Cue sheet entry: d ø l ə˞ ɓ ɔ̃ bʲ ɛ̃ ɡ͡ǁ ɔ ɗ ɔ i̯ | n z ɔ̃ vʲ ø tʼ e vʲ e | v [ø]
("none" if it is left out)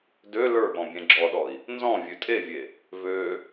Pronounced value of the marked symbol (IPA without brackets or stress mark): ø